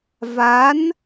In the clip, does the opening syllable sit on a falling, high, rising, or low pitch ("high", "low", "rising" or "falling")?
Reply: rising